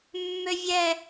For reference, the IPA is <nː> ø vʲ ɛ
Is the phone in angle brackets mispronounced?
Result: yes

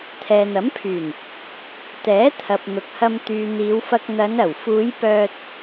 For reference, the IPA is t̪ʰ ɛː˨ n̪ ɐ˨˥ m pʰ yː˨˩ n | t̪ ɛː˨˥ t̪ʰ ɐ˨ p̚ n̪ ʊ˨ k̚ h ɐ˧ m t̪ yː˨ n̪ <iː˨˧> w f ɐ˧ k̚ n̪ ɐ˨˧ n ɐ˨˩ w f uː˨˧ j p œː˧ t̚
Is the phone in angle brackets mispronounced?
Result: no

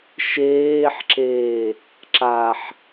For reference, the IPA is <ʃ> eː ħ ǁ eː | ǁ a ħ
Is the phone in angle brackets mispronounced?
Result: no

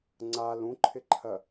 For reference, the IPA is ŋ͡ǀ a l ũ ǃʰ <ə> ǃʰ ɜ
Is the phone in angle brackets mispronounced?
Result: yes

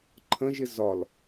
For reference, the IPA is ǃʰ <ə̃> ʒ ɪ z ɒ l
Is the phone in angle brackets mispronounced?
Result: no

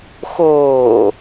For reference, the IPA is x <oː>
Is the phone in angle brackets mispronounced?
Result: no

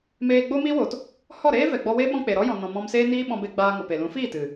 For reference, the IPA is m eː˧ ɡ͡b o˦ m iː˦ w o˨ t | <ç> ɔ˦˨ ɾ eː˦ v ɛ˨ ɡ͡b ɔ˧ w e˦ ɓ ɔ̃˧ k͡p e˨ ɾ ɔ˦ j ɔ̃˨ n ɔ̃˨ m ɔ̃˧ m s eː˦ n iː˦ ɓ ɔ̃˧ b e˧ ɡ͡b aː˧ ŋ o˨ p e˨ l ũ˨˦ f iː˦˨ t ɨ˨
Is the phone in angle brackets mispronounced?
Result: yes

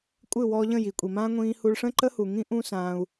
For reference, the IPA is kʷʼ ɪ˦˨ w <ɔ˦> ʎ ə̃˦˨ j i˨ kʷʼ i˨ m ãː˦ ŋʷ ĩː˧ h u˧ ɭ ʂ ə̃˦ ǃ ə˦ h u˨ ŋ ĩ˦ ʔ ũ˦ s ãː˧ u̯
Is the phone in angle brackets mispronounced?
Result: yes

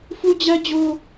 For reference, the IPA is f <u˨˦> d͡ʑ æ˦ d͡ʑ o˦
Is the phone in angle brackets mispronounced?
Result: yes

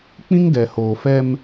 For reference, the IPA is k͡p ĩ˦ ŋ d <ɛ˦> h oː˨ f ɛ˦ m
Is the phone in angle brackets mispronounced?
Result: yes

